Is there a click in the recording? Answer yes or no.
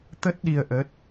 no